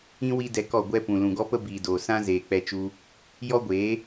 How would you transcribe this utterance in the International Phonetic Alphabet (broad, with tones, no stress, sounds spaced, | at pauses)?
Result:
ĩ˦ w i˦ d ɛ˧ k ɔ˦˨ ɡʷ ɛ˦ p ũ˨ l ũ˨ ɡ ɔ˦ p ə˦ b iː˨ d oː˨ s ã˦ z eː˨ k͡p ɛ˧ t͡ʃ u˧ | j ɔ˦ ɡʷ eː˨˦